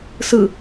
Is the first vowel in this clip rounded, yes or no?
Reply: no